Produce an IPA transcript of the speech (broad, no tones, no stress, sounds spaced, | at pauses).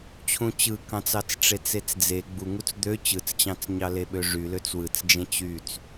t͡ɕʰ ũ t͡ɕ ɯ k ɑ̃ t͡s ɑ t͡s ʈ͡ʂ e t͡s e t͡s d͡z e ɡ͡b u ŋ u t͡s d̪ ø t͡ɕ ɯ t͡s t͡ɕ ɑ̃ t͡s ɲ ɑ l e ɓ ø ʐ y l ø t͡s w ɯ t͡s d͡ʒ ẽ t͡ɕ y t͡s